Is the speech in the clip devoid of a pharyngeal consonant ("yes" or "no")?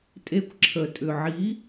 no